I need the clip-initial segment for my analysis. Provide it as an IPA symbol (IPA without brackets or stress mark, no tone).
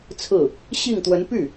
t͡sʰ